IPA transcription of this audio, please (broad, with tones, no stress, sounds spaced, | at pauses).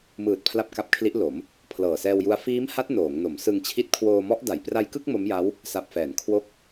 m ɯː˨˩ t̚ pʰ l a˥˩ p̚ k a˦˥ p̚ kʰ l i˦˥ ʔ l o˩˦ m | pʰ l ɤː˨˩ s ɛː˧ w j u˦˥ a̯ f iː˦˥ m h a˦˥ t̚ n oː˩˦ ŋ n o˩˦ m s ɯ˧ ŋ t͡ɕʰ i˦˥ t̚ kʰ w oː˧ m ɔ˦˥ ʔ d a˩˦ j p r a˧ j k ɯ˥˩ k̚ m o˦˥ m j a˦˥ w | s a˨˩ p̚ f ɛː˩˦ n kʰ w o˦˥ k̚